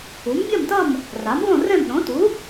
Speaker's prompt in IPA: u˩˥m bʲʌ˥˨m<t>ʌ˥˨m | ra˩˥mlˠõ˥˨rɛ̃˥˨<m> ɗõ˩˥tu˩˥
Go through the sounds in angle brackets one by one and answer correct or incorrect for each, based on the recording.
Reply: correct, correct

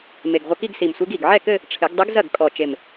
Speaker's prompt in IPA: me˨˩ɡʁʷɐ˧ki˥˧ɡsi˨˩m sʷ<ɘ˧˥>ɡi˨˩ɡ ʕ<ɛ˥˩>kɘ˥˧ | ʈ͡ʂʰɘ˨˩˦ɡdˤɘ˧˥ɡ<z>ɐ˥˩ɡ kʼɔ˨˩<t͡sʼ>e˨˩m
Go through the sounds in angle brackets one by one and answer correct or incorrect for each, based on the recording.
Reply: incorrect: e˧˥, correct, correct, incorrect: t͡ʃ

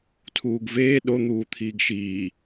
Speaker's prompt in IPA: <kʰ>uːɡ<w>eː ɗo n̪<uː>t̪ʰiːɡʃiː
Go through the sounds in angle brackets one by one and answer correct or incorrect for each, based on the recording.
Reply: incorrect: tʰ, incorrect: v, correct

